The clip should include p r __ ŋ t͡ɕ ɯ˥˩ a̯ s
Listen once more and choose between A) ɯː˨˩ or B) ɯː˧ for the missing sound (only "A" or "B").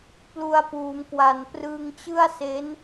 B